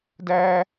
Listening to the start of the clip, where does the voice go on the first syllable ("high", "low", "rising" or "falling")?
high